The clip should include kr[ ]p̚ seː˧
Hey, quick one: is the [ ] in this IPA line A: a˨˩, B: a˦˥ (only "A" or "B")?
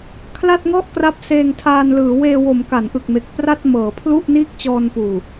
B